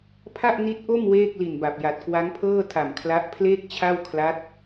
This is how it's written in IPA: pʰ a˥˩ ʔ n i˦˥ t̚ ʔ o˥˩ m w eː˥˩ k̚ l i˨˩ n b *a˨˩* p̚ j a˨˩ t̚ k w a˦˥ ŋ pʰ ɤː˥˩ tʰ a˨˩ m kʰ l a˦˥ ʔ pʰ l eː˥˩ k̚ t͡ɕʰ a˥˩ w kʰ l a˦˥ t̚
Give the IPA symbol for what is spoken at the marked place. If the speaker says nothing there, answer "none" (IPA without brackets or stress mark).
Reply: a˨˩